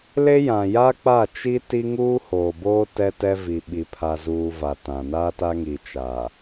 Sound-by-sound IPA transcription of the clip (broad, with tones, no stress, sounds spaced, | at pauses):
l e˦ j ã˨ j a˦ k͡p a˦˨ t͡ʃ i˦ t i˦ ŋ uː˦ h oː˨ b oː˦ t ɛ˦ t ɛ˦ v i˨ ɓ i˨ pʰ a˨ z uː˨ v a˨ t ã˨ n aː˦ t a˦ ŋ i˨ t͡ʃ a˨